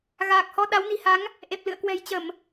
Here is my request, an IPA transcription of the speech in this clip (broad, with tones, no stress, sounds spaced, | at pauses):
ɣ aː˨˩ k̚ h ɔ˧ ɗ a˨˦ w n i̤˨˩ h a˨˦ ŋ | ʔ e˨˩ p̚ l ɨ̰˧˨ ə̯ k w ɛ̤˨˩ j t͡ɕ ə˧˩˨ m